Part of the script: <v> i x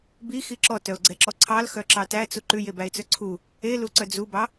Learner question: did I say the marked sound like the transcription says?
no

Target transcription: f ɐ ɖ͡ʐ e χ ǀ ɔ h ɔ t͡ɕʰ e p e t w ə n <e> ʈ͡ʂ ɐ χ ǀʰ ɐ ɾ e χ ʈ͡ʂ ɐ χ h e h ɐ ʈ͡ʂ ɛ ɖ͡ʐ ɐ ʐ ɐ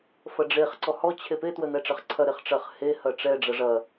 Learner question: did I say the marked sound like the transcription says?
no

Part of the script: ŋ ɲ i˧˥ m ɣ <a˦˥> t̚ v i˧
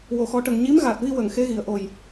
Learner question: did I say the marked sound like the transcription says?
no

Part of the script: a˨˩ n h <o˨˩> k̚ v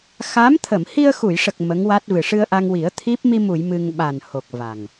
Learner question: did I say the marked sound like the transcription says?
yes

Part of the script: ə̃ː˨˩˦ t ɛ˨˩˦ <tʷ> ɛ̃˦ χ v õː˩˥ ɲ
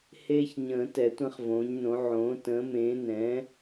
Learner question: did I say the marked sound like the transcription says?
yes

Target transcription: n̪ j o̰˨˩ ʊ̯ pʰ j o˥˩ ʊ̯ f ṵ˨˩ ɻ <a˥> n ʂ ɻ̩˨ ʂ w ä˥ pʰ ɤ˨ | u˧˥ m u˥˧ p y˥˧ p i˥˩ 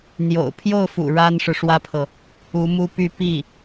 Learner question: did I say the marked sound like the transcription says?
yes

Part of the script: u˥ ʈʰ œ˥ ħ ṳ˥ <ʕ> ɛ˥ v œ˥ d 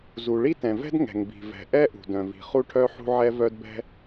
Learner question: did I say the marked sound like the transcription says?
yes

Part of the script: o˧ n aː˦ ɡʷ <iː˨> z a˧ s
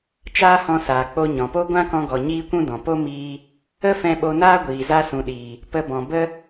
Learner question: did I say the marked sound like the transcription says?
yes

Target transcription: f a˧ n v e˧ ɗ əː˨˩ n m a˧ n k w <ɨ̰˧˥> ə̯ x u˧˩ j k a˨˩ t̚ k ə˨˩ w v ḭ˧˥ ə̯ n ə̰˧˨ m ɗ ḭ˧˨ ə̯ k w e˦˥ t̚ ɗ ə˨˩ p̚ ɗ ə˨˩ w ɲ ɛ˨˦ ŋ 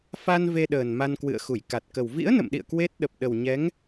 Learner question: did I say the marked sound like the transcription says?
no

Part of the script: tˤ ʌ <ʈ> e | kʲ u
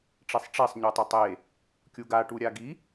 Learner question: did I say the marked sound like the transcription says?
no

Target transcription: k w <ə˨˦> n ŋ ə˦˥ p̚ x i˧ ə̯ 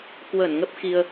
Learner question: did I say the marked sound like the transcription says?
no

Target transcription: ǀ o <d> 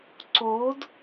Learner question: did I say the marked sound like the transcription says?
yes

